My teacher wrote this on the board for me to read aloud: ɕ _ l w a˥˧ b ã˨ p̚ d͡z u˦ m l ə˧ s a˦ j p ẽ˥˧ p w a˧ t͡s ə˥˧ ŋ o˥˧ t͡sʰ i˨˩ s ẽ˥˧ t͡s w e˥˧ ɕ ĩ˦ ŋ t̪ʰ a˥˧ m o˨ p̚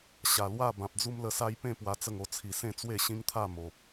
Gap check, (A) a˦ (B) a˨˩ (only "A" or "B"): B